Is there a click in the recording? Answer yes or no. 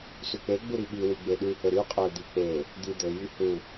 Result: no